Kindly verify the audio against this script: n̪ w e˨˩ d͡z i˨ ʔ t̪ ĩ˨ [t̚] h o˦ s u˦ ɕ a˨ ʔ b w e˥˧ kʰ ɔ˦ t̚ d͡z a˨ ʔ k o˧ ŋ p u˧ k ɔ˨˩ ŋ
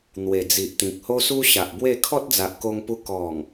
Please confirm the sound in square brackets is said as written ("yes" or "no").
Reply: no